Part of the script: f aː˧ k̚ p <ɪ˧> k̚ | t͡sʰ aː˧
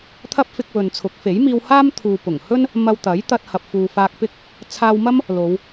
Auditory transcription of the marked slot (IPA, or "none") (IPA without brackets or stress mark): ɪ˥